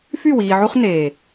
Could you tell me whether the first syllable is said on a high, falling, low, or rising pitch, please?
falling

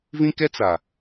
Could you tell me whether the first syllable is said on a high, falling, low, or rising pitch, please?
high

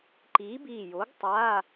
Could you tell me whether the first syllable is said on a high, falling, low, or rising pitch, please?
rising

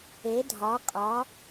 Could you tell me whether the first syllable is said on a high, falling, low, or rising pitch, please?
rising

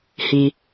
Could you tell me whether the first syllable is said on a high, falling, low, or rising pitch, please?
low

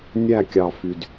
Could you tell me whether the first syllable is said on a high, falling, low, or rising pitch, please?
falling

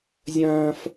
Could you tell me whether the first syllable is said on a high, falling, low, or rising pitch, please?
high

